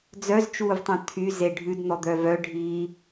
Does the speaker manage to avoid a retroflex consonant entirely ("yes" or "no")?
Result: no